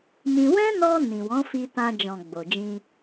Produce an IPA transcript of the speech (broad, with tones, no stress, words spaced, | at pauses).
mĩ˧ wɛ̃˦nɔ˧ nĩ˨wɔ̃˨˦fi˧tã˧ d͡ʒɔ̃˨ ɡ͡bo˨ d͡ʒĩ˧